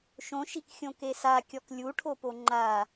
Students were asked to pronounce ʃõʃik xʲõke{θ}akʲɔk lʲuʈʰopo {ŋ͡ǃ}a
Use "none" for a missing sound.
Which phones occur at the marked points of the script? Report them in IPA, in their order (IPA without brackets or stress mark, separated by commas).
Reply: s, ŋ͡ǃ